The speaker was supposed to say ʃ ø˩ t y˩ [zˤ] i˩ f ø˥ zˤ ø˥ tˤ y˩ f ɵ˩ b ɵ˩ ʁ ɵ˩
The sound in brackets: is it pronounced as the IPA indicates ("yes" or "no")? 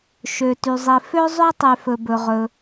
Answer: yes